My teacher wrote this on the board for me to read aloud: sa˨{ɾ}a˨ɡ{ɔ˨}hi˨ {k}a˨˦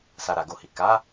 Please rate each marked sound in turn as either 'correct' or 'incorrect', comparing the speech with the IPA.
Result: correct, incorrect: o˨, correct

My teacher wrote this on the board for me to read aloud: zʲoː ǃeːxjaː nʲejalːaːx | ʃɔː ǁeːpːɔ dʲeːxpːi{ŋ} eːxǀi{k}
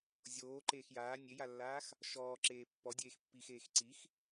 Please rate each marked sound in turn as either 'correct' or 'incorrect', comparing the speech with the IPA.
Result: incorrect: x, incorrect: x

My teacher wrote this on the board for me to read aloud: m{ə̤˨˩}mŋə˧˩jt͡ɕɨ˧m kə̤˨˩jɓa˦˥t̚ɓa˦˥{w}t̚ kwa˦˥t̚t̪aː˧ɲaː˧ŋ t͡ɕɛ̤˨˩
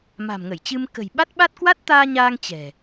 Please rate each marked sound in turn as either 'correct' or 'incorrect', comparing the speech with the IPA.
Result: incorrect: a̤˨˩, incorrect: none

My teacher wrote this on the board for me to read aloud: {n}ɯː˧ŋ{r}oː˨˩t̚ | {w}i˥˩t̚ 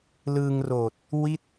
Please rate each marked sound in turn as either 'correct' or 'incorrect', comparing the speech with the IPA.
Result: incorrect: l, correct, correct

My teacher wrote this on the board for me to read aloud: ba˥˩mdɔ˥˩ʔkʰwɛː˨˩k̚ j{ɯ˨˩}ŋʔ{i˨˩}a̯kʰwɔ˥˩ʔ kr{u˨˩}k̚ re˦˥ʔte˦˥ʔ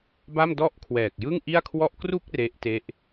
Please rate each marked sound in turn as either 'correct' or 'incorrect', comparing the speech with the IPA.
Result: incorrect: ɯ˥˩, incorrect: i˥˩, incorrect: u˥˩

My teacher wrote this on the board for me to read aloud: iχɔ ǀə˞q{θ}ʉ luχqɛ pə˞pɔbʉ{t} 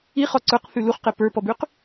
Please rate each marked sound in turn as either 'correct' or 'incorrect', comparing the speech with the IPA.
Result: correct, incorrect: q

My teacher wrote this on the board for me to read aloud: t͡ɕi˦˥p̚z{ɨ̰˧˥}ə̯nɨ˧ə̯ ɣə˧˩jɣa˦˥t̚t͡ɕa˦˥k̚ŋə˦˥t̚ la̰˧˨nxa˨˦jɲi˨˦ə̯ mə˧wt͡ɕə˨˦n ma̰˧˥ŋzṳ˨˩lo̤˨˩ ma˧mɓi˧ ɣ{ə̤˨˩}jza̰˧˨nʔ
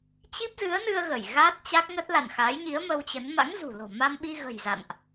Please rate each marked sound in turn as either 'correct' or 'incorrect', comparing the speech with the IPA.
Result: incorrect: ɨ˨˦, correct

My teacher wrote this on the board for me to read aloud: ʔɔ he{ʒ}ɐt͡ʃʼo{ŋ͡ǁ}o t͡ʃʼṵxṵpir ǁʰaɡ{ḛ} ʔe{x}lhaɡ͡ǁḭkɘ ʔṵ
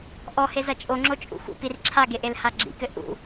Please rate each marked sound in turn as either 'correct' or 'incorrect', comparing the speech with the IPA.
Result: incorrect: z, correct, incorrect: e, incorrect: none

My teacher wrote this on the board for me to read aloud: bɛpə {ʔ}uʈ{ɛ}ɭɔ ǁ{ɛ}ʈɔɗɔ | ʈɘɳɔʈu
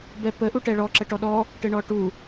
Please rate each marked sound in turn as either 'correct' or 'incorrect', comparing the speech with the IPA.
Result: correct, correct, incorrect: ə

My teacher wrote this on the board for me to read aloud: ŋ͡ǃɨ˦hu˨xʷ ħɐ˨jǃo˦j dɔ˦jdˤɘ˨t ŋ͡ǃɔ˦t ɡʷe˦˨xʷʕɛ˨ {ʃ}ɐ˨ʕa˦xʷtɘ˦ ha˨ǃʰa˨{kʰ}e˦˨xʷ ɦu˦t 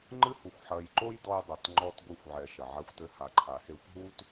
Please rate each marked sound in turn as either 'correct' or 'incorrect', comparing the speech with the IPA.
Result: correct, incorrect: x

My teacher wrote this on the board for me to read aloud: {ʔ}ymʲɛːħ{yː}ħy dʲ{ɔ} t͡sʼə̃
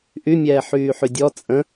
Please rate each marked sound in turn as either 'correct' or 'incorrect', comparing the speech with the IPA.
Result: correct, correct, correct

